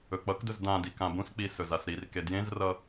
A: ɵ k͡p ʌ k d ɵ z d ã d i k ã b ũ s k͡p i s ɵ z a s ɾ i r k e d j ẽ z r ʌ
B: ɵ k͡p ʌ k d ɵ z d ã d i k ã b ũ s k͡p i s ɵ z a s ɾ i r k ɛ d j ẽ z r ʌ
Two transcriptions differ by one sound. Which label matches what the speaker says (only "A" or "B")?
A